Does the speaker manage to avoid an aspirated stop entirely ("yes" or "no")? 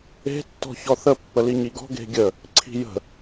no